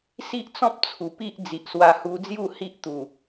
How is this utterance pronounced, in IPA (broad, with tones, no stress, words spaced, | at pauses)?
si˦ʔt͡sɔ̃˦p̚ t͡sʰu˨˩pi˦ʔ d͡zi˨ʔswa˧hu˧d͡zju˥˧ hi˦ʔt̪u˨˩